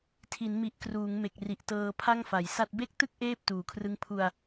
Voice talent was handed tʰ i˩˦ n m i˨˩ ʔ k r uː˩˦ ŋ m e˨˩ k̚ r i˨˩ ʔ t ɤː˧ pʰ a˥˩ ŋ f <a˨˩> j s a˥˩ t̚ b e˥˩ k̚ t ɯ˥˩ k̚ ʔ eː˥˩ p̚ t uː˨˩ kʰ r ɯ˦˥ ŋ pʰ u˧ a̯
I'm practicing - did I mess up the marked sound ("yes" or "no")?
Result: yes